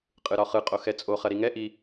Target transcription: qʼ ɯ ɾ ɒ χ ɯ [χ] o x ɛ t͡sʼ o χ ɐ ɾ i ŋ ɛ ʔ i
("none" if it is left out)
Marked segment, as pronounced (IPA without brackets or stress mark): qʼ